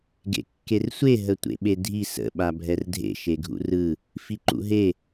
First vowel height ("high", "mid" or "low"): mid